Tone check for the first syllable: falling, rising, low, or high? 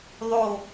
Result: falling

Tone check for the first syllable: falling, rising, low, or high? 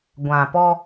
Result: low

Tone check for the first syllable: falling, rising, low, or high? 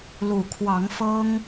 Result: low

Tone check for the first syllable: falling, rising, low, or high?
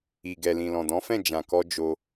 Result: low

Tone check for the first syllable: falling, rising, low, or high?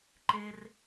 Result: high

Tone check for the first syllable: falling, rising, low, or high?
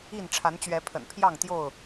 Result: falling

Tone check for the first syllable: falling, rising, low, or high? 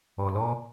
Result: low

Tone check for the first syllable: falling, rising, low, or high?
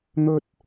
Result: high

